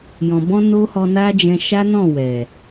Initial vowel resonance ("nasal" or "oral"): nasal